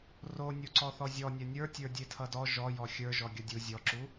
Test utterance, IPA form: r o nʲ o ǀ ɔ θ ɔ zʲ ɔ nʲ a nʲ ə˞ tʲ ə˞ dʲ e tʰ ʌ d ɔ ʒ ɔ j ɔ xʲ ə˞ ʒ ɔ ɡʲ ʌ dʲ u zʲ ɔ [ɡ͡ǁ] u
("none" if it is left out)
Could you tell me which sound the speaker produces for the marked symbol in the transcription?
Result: ǁ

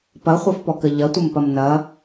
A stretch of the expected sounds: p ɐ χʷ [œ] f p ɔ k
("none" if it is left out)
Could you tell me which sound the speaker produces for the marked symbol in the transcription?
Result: œ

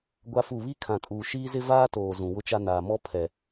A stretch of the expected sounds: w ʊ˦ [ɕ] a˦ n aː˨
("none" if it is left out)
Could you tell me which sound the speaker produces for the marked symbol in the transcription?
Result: t͡ʃ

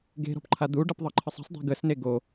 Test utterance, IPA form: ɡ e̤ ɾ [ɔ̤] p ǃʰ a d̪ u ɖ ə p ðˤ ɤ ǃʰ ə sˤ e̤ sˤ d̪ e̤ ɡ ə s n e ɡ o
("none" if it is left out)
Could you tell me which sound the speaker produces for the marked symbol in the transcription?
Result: ɔ̤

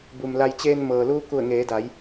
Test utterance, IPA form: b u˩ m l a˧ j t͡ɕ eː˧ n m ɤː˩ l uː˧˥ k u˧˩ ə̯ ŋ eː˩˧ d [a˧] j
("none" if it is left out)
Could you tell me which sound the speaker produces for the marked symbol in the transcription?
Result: a˩˧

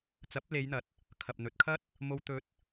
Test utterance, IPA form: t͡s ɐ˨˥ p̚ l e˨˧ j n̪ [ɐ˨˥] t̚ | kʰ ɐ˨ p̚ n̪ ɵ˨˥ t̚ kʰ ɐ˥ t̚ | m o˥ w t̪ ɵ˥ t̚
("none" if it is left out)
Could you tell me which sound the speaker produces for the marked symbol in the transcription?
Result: ɐ˨˥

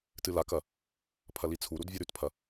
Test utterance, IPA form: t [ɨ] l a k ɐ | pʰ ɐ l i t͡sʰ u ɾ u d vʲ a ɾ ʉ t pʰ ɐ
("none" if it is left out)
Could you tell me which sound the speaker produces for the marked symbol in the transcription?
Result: ɨ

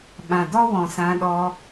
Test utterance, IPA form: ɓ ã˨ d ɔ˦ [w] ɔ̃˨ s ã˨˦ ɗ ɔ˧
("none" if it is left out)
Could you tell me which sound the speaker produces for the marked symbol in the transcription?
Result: w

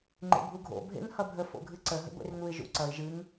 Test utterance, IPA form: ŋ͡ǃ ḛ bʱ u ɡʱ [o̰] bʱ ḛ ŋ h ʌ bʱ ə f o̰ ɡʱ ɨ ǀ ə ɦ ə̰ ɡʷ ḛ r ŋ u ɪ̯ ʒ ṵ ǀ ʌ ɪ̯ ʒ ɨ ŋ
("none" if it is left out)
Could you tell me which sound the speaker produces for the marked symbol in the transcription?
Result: o̰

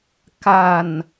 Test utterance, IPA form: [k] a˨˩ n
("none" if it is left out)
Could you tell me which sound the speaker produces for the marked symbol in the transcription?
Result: k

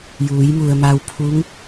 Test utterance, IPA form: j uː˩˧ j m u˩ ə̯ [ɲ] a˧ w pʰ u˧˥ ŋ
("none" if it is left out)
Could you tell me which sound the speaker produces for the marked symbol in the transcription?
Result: m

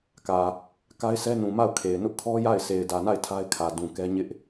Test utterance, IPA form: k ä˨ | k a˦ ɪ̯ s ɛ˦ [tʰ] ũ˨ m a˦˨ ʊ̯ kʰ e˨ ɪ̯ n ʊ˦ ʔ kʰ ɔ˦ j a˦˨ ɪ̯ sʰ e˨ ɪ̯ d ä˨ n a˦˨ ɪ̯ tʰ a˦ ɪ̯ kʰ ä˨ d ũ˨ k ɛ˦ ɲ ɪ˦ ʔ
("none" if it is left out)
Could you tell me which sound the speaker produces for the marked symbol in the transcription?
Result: n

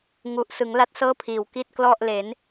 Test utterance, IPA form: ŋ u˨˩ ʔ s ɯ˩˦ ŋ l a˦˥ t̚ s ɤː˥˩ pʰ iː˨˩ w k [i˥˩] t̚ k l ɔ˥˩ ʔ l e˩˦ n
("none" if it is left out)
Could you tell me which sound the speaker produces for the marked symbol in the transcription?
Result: i˥˩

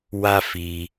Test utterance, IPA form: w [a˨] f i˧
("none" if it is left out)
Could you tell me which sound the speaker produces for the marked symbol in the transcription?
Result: a˦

